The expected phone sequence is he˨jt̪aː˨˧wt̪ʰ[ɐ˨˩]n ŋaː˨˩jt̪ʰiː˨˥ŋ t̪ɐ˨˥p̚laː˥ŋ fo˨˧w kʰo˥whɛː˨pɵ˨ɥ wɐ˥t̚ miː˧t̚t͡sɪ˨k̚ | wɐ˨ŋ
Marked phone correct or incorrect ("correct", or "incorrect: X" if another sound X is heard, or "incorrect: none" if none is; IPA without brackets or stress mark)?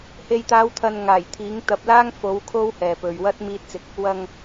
incorrect: ɐ˨